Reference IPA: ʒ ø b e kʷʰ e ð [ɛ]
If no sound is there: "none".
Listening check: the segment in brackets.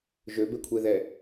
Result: ɛ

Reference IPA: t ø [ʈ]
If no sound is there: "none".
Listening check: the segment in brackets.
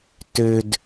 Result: d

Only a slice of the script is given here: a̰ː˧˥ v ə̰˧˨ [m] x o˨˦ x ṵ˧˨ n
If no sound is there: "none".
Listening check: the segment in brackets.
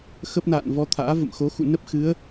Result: m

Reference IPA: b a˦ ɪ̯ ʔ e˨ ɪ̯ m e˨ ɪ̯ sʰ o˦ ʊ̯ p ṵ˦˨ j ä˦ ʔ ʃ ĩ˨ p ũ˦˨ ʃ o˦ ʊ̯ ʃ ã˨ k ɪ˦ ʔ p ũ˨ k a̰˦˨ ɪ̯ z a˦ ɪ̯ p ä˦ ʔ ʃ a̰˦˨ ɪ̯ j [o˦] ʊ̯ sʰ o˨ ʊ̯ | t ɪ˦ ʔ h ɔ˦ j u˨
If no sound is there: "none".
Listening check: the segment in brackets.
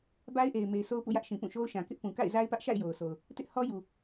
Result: o˨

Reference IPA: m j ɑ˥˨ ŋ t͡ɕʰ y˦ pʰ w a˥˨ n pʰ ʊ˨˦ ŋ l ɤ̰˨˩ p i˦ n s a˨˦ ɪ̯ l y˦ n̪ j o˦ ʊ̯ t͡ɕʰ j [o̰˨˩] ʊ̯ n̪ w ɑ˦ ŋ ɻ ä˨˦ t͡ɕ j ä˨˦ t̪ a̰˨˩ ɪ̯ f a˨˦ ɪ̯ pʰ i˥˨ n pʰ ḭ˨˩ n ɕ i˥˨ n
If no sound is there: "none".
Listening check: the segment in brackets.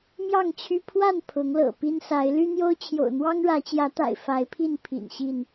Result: o̰˨˩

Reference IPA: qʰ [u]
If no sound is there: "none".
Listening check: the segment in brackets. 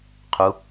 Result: u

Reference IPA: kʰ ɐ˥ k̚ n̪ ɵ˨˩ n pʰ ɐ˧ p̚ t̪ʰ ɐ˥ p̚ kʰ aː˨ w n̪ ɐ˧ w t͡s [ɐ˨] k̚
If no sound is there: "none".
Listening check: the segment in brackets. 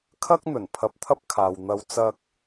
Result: ɐ˥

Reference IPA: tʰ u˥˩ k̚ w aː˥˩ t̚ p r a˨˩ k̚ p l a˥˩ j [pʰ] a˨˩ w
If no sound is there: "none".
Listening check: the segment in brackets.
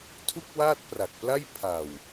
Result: pʰ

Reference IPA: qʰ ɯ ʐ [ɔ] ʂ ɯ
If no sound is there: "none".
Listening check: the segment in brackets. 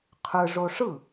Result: o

